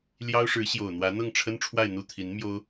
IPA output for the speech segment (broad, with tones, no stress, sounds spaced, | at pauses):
l j ɑ˥ ʊ̯ ʂ ɻ̩˧˥ ɕ j o˨˩ ʊ̯ n̪ w ä˧˥ n̪ ɤ˥˩ ŋ ʈ͡ʂʰ ə˥ n ʈ͡ʂʰ w a˥˧ ɪ̯ n̪ u˥˩ t̪ʰ i˧˥ n m j o˥ ʊ̯